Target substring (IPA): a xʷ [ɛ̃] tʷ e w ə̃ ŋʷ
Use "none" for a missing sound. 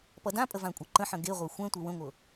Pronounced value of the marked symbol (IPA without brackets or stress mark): ɛ̃